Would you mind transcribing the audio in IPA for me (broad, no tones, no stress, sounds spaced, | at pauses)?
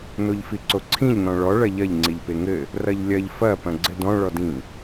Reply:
n o ʎ f i ǀ o ǀʰ ĩ ʎ n ɔ̃ ɭ ɔ ɭ ɐ ʎ ɐ ʎ ŋ͡ǀ i ʎ p e ŋ ɘ | r ɐ ʎ lʲ ɐ ʎ f ɐ p ɐ̃ ɡ͡ǀ ɘ d ɔ̃ ɭ ɔ d ĩ